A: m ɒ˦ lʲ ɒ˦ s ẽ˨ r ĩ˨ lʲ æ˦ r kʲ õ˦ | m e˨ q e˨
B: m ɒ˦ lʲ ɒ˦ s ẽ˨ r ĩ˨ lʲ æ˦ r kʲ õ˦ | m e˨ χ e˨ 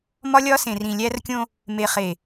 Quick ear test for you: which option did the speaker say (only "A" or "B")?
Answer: B